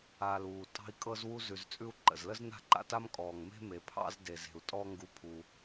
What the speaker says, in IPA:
a˨ l uː˩ tʼ ɑ̤˥ i̯ kʼ ɤ˥ z w u˥ z ʉ˨ z t͡sʼ ʉ˥ u̯ ǃ ə̰˩ z l ə˥ z n a̤˥ ǃ a̰˦ t a˥ m kʼ ɔː˩ ŋ m e̤˦ m e˩ pʰ ɑ̰˦ z d e˩ z e̤˩ u̯ tʼ ɔ˦ ŋ ɡ u˨ pʰ u˩

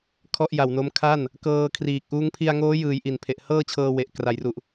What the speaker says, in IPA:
kʰ ɔ˥˩ ʔ j a˨˩ w n o˦˥ m kʰ a˥˩ n | k ɤː˧ kʰ r iː˨˩ k̚ ʔ uː˦˥ ŋ pʰ i˧ a̯ ŋ oː˦˥ j ɯː˩˦ j ʔ i˨˩ n pʰ e˨˩ ʔ h ɤː˥˩ t͡ɕʰ ɤː˧ w e˨˩ ʔ k r a˩˦ j r u˨˩ ʔ

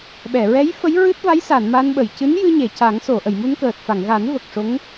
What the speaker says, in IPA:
ɓ ɛ˨˩˨ ɹ ɛ˧˥ j f ə˧˥ j ɹ ɨ˦˥ t̚ v a˧˥ j s a˨˩˨ n m a˧ n ɓ ə˨˩˨ j c ɨ˧˥ n j ɨ˧ ɲ e˨˩˨ c a˨˩˦ ŋ s o˨˩˨ ʔ ə˨˩˨ j m u˧ n k əː˨˩ t̚ f a˨˩˨ ŋ ɣ a˨˩˦ n v ə˨˩ k̚ ʂ o˧˥ ŋ

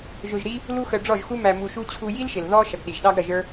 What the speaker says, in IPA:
ʒ ʊ˧ ʒ ɾ i˦ | l u˦ x ə˧ ɖ͡ʐ ɔ˦˨ ʒ x u˦ m æ˧ m u˧ ʃ u˦ t͡ɕʰ u˧ j i˦ l ʃ ɪ˨ l ð ɔ˦ ʃ ʌ˨ ɡ ɗ i˨ ʒ ɗ ɑ˦ ɡ ɾ ʌ˧ ʒ ə˞˦

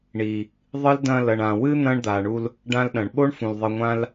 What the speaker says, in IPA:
ɳ i˨ | ðˤ ɨ˦ l d ɐ̃˧ l ɐ˨ ɳ ã˨ w ɨ˦ n̪ ɐ̃˦ ɳ d̪ a˨ ɳ u˧ l | ɖ ã˧ l ɗ ɐ̃˨ ɳ ɓ o˦ ɳ f ũ˨ l ðˤ ɨ˨ ŋʷ ã˧ l

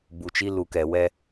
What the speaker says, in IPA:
b u˨ t͡ʃ i˦ l u˨ k ɛ˨ w ɛ˦

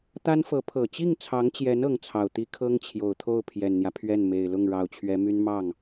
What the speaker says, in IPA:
t̪ a˥ n f ɤ˧˥ pʰ ɤ˨˩ t͡ɕ i˥˩ ŋ t͡sʰ ɑ˧˥ ŋ t͡ɕ j ɛ˧˥ n ɤ˧˥ ŋ t͡sʰ ɑ˨˩ ʊ̯ t̪ i˥ kʰ ɤ˥ ŋ t͡ɕʰ j o˨˩ ʊ̯ t̪ʰ o˥˩ ʊ̯ pʰ j ɛ˨˩ n n̪ j ä˦ pʰ ɥ ɛ˥˩ n m e˨˩ ɪ̯ l ʊ˥˩ ŋ ɻ ɑ˨˩ ʊ̯ t͡ɕʰ ɥ ɛ˧˥ m y˥ n m ɑ˥˩ ŋ

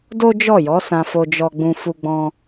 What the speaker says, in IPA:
d o˦ d͡ʒ ɔ˦˨ j ɔ˨˦ s ã˧ f o˧ d͡ʒ ɔ˧ ɡ͡b ũ˧ f u˧ ɡ͡b ɔ̃˧

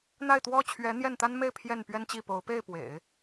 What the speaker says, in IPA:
n̪ a˥˩ ɪ̯ t̪ w ɔ˥ t͡ɕʰ ɥ ɛ˧˥ n̪ j ɛ˥˩ n t̪ a˥ n m e˥˧ ɪ̯ pʰ j ɛ˥˩ n p ɥ ɛ˥ n t͡ɕ i˥˩ p o˧˥ ʊ̯ p e˥˩ ɪ̯ p w ḛ˨˩˦ ɪ̯

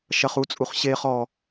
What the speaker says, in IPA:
ʃ ɐ χ u t͡sʼ u χ ɕ e χ ɔ

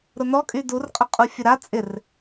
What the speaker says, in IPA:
ɾ ʊ n ɔ kʼ y d u r qʼ ə qʼ u fʲ ʊ ɾ a t͡sʼ ɪ r

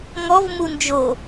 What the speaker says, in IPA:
ŋ ɔ v m u n d͡ʒ o

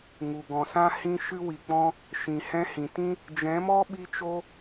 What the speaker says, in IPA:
ŋ u˨ ɡ ɔ̃˨ s ã˦ h ĩ˧ ʃ ɨ˧ w i˨ k͡p ɔ̃˧ | ʃ ĩ˨ h ɛ̃˧ h ĩ˨ t ĩ˦ | d͡ʒ ɛ̃˨˦ m ɔ˦ ɓ i˧ t͡ʃ o˧

